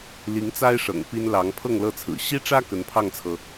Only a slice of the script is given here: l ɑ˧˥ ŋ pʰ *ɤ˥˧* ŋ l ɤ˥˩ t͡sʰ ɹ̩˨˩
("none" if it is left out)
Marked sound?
ɤ˥˧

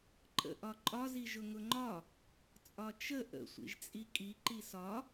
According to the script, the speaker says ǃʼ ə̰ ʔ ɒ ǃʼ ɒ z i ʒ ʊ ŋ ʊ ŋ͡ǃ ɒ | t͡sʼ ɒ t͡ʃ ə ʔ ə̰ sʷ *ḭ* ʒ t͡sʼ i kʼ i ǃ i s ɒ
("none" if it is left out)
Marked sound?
ḭ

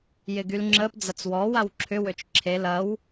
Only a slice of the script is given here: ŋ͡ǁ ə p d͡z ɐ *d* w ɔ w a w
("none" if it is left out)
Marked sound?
t͡s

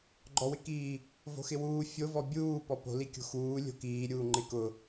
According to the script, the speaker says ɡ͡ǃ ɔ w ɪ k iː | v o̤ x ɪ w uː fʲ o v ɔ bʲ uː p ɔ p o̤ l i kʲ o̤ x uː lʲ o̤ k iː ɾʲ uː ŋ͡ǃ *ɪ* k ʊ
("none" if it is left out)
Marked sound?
ɪ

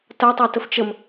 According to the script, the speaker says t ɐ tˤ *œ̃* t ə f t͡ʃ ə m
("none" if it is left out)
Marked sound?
œ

